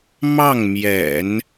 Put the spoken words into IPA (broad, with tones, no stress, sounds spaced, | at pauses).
m ɑ˥˩ ŋ m j ɛ̰˨˩˦ n